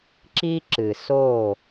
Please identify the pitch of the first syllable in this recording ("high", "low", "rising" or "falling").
high